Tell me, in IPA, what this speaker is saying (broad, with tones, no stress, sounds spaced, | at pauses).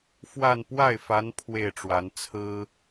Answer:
f w a˥˧ n p w a˥˩ ɪ̯ f a˧˥ n pʰ w e˥˩ ɪ̯ ʈ͡ʂ w a˧˥ n t͡sʰ ɹ̩˥